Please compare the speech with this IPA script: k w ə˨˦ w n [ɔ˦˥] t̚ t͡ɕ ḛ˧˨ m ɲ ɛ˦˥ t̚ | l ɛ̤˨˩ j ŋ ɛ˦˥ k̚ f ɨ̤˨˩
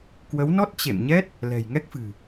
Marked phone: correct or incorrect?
correct